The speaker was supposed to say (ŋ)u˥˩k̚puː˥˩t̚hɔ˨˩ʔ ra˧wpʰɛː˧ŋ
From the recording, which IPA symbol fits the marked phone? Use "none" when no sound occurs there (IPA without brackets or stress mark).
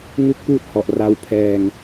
ŋ